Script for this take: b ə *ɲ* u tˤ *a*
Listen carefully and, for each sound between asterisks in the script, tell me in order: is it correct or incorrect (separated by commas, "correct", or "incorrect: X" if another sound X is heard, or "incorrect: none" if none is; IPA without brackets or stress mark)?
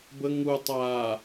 incorrect: ŋ, correct